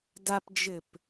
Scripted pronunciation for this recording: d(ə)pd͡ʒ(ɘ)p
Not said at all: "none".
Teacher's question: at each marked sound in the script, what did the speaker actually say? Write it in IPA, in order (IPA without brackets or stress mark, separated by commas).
a, ɘ